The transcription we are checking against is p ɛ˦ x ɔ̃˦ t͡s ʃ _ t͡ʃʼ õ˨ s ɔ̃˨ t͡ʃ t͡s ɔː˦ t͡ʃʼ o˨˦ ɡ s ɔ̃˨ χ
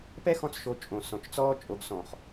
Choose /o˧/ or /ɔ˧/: o˧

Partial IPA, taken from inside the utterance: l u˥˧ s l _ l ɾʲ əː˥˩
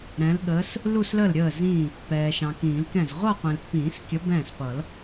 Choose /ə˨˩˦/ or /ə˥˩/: ə˥˩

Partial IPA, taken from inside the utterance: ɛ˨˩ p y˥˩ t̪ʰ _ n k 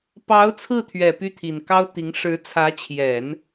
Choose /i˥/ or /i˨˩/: i˨˩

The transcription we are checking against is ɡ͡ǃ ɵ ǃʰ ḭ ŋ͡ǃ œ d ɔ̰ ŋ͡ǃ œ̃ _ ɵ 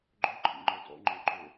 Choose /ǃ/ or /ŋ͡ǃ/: ǃ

